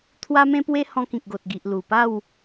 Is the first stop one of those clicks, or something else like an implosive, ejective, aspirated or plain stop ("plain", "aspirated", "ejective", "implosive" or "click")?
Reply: aspirated